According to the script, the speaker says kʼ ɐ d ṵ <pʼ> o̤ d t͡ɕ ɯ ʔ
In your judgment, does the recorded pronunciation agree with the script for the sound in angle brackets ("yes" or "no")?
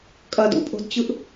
yes